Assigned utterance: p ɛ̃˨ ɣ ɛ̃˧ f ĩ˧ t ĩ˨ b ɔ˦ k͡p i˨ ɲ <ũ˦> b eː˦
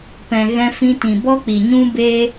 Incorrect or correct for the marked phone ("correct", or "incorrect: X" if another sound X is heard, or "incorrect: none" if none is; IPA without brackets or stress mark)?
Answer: correct